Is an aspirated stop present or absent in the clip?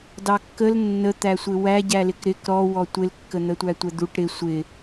absent